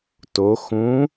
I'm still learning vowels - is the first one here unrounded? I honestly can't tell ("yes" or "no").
no